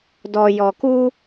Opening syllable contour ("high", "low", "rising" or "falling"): low